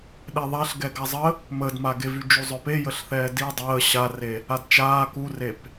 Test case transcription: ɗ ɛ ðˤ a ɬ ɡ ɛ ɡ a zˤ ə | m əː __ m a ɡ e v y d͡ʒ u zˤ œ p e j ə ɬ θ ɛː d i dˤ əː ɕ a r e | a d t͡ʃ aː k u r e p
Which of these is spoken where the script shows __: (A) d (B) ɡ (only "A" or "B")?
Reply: A